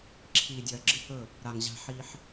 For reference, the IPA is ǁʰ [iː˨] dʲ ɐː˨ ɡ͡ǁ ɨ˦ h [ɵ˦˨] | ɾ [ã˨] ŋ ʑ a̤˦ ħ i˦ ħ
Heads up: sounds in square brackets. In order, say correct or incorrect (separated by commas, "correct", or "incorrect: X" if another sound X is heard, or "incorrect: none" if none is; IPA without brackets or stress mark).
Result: correct, correct, incorrect: a˨